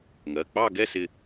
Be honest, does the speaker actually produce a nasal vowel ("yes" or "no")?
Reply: no